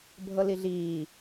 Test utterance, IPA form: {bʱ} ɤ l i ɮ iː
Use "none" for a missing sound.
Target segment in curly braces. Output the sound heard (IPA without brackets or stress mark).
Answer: bʱ